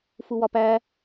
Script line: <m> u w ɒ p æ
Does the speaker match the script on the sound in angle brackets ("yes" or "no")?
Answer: no